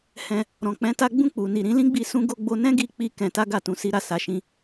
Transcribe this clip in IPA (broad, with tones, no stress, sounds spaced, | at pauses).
h ɛ̃˧ | ɾ ɔ̃˨ k͡p ɛ̃˨˦ t a˦ ɡ͡b ũ˦˨ k͡p u˨ n i˨ ɾ ĩ˨˦ l ĩ˦ ɡ͡b i˧ s ũ˦ ɡ o˦ ɡ͡b o˧ n ɛ̃˦ ɡ i˧ k͡p i˧ k ɛ̃˧ t a˦ ɡ a˦˨ t ũ˧ s i˦ ɾ a˦˨ s a˨˦ ʃ ĩ˦